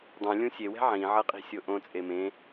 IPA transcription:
dˤũlʲũ sʲewɛ̤ ʕĩʕʌqʼi̤sʲo ʔõt͡sʼe mẽ

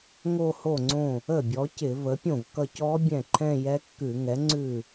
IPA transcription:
ŋo˥˧ho˥˩ŋ͡ǀõ˥˩ | ə˥˩bʲɔ˩˥ cɪ˧˩˧və˩˥pʲõ˥˩vkʌ˥˧c ɔ˦˥ bʲɛ̃˥˩ǃʰɛ̃˥˧jɛ˦˥ kːʉ˧˩˧ŋɛ˩˥ŋ͡ǀʉ˥˩

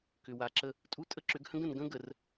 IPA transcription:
kʏ˨wa˨ǁə˦ | tʼu˦ tʼə˦ǁʏ˨˦ɡhə̃˦ɡ ə̃˨n ɡə̃˦ɡə˨r

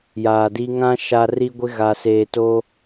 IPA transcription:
jaː˨di˦ ŋã˦ ʃa˨ ri˦ɡʷɪ˦ ɣa˨seː˨to˦

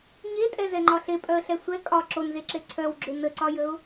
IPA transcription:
ɲetʼɛzɛŋ͡ǃɒ ɬepʼœə̯ɬɛ sʷɛ kʼɒ ǁonzeǁe ǀʰœwɡ͡ǁʏ nəǀɒjəʊ̯

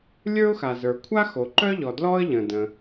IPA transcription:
lʲə˞˥ʊ̯xa˩zə˞˩ kʷʰa˥xo˩ǃœ˥ʎɔ˩ dlɔ˥ə̯ ʎə̃˩də̃˩

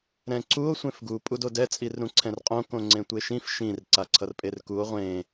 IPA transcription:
ɾɛ̃ǀuo̯ sʷẽfɡu pʼudodɛ t͡sʼirɾũǀʰɛ̃rqʼõ kõŋ͡ǀẽtʷeʃĩf ʃĩr ǀaǀʰʌrpʼerkuo̯ ʁʷẽ

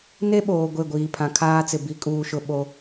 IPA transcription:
ne˦ɓoː˨ ɡʷe˦˨ɡʷiː˨ pʰã˨kʰaː˦t͡sɪ˨ bi˦kʼuː˦ʃʊ˦ ɓo˦

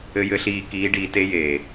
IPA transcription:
ɘ˨jɘ˨ɬiː˨ kiː˨˦ɖiː˨te˦ jeː˨

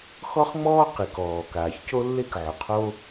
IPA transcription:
xɔ˥χŋ͡mɔː˥ qi˩kɔː˩ kaː˩çco˥lːe˥k ʕʊ˩qʰo˥

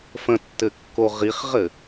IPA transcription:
fə̃tːɘkːo ʁiχʁɘ

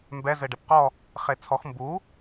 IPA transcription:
mbɛ zɘɖɛpqɔ | χet͡sʰɔx mbu

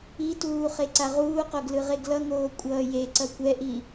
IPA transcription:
ituː χeǀaʁuːqoɡ lɯʁeɡlʌŋoː kʷʼʌːjeǀʌ kʷɛʔi

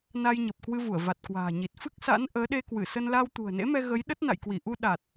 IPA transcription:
na˧jɲə˨˩p̚ kwɨ˧vu˧˩ə̯ va˨˩t̚kwa̤ː˨˩ɲi˨˩t̚ fɨ˦˥k̚sa̰˧˥n ʔəː˨˦ɗe˧kwɨ˧˩ sə˧nla˧w t̪ṳ˨˩ə̯nḛ˧˥mɛ˧ ɣə˨˦j ɗə˦˥t̚na̰˧˨jkwi˧˩ʔu˧ ɗa˨˩t̚

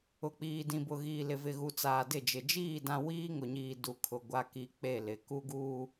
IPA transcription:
ʊ˨k͡piː˨ dĩ˨bʊ˨ɣiː˨ lɪ˨vɪ˨ɣu˨ t͡saː˨dɪ˦˨d͡ʒɪ˨ d͡ʒiː˦˨ dã˦ wiː˦ŋʊ˨ɲiː˨ du˨ kʰʊ˨ ɡʷa˨ki˨ k͡pe˦˨lɪ˨ ku˦ɡuː˦

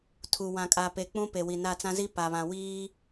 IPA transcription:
tʰu˨wã˨kʼaː˨pe˨ k͡pũ˦pe˨ wi˨na˦˨t͡sã˦zi˦ pa˨βã˨ wiː˦

